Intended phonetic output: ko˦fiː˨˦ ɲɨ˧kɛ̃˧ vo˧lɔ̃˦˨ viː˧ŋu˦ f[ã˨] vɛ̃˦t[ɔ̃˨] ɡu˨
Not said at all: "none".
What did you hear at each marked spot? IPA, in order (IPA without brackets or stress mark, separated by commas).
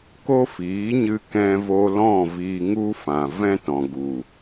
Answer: ã˨, ɔ̃˨